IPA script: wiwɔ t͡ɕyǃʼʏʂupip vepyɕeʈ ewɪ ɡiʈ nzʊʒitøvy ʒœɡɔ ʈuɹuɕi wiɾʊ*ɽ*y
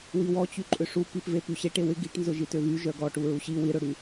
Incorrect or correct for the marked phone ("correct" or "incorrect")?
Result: correct